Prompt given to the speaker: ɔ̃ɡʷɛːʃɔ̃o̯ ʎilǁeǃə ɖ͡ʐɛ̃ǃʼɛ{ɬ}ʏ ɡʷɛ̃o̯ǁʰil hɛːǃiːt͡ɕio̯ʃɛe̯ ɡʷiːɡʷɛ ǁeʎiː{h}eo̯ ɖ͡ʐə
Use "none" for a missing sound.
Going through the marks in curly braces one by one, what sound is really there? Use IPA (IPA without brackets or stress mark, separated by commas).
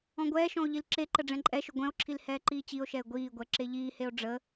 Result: ʃ, h